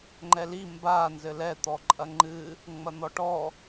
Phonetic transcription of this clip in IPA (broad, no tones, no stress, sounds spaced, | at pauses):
ŋ͡ǃ ɛ l i m b a n z ɘ l ɛ t̪ ɔ ǃʼ ɐ ŋ͡ǃ ɨ | ŋ͡m ɐ n̪ ɔ ʈ ɔ